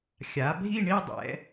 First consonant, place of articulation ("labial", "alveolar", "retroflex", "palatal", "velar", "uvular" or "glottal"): velar